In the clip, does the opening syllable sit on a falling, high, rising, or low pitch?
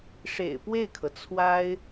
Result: low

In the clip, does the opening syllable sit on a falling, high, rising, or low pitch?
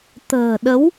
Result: low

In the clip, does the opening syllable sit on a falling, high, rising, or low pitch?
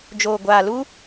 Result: low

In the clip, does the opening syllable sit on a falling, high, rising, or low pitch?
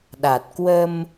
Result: low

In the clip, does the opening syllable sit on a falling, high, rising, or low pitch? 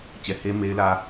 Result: low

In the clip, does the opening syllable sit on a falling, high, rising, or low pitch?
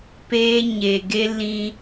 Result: high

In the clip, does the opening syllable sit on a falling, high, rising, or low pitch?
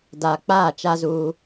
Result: low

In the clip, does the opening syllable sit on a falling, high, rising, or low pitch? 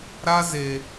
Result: high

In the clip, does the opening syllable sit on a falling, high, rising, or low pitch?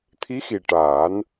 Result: rising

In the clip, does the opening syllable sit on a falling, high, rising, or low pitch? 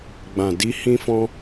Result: low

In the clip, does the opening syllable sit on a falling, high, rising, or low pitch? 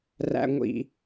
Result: low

